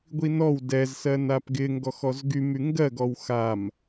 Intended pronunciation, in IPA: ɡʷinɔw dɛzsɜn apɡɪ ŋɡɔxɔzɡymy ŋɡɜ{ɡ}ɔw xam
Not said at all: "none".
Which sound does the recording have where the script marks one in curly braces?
ɡ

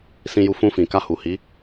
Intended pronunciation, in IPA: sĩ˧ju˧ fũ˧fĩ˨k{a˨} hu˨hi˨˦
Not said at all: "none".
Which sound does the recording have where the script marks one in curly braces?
a˧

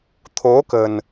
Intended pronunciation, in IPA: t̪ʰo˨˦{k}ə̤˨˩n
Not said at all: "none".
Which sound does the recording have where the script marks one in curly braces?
k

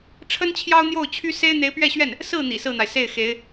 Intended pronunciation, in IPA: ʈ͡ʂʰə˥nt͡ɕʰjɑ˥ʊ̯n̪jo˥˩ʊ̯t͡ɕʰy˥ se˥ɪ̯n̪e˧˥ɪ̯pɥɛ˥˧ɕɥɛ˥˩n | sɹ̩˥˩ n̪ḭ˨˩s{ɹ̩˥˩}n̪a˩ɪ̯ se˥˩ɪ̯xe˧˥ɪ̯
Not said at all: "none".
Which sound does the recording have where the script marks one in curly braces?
ɹ̩˥˩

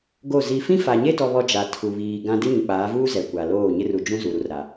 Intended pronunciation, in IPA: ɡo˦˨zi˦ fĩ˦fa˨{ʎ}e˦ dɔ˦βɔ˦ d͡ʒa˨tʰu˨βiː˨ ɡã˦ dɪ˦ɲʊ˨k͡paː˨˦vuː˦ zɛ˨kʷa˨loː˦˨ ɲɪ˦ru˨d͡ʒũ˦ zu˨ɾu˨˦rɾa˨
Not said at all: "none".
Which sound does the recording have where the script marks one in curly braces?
ɲ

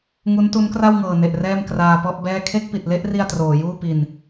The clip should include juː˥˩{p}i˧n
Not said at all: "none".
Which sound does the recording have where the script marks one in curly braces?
p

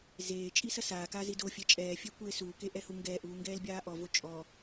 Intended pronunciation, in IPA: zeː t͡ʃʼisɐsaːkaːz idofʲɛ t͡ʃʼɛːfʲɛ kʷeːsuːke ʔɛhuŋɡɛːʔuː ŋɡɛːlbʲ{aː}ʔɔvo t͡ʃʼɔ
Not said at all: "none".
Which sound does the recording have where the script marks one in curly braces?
aː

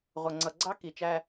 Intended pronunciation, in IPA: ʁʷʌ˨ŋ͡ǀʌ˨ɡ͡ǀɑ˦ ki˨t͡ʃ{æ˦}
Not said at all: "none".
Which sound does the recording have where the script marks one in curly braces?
æ˦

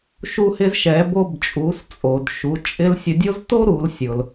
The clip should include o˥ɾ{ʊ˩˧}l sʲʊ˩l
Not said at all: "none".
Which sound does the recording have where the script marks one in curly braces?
u˩˧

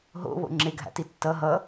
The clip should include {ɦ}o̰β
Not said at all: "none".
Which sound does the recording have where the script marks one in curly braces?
ɦ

